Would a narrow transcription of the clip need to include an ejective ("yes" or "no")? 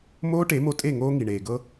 yes